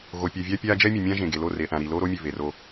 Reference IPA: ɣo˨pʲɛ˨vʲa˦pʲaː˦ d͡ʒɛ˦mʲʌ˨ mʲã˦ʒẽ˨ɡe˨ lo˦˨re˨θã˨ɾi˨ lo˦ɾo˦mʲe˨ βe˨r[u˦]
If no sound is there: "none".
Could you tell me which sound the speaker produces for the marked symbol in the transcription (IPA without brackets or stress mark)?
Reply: o˦